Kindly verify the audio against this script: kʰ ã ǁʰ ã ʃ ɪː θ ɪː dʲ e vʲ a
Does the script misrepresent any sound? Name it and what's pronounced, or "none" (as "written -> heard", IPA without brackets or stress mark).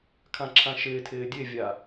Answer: θ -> tʰ